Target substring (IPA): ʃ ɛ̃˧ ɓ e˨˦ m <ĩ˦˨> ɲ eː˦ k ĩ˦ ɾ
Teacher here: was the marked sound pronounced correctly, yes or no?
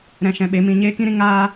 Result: no